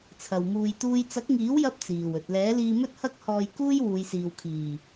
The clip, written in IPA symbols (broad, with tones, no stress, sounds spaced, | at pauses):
t͡sʰ ɐ˨ w m uː˧ j t̪ uː˥ j t͡s ɐ˨˥ k̚ ŋ iː˨˥ w j ɐ˥ p̚ t͡s iː˨˩ w ɵ˨ t̚ l ɛː˨˥ l iː˧ m ɵ˥ t̚ h ɐ˥ k̚ h ɔː˧ j k uː˥ j w uː˨˧ j s iː˨ w kʰ iː˨˩